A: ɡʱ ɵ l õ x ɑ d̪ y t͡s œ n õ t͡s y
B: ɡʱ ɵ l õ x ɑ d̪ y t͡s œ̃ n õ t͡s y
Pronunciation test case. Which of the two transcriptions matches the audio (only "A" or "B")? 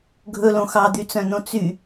B